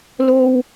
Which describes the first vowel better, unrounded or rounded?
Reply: rounded